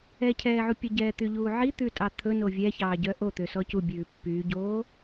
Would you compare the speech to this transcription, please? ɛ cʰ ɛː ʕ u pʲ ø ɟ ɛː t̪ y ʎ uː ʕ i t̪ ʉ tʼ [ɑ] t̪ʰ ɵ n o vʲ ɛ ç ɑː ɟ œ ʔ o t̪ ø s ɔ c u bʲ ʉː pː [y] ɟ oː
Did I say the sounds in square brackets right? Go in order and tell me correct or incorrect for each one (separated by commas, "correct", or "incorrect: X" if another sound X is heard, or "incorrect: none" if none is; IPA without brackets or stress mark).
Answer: correct, incorrect: yː